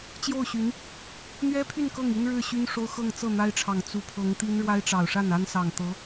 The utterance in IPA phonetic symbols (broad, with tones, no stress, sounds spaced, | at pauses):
t͡ɕ j o˥˩ ʊ̯ ɕ y˧˥ n | n̪ ɥ ɛ˥ pʰ y˥˧ n k ɤ˥˩ ŋ i˥ n ɻ ɻ̩˥˩ ɕ y˥ n ʂ o˥ ʊ̯ x ɤ˥˧ ŋ t͡s ɤ˥˩ n̪ a˥ ɪ̯ ʈ͡ʂʰ ɑ˨˩ ŋ t͡s u˧˥ pʰ ɤ˧˥ ŋ t̪ i˥ n ɻ w a˥ ɪ̯ ʈ͡ʂ ɑ˨˩ ʊ̯ ʂ a˥˩ n a˥ n s ɑ˨˩ ŋ t̪ ɤ˧˥